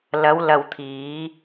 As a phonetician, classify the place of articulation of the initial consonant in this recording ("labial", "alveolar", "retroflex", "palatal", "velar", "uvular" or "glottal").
alveolar